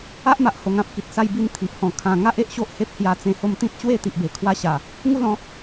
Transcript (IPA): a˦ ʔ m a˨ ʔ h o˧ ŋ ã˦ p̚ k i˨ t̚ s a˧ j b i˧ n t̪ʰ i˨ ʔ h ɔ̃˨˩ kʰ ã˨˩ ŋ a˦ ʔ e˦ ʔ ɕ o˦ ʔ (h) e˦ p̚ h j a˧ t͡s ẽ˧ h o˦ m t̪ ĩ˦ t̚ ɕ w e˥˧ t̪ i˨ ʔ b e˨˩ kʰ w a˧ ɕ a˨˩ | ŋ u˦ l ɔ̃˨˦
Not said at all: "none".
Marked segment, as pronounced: h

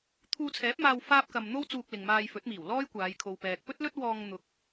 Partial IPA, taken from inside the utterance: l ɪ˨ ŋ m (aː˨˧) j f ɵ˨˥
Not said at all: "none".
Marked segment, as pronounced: aː˧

